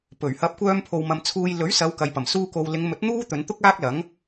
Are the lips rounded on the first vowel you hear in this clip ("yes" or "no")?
yes